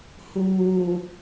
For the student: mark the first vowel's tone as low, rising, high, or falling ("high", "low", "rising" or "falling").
low